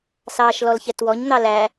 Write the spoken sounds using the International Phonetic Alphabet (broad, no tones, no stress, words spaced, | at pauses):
sɑːʃlɔlçɛtwɔɲ n̪ɑlæ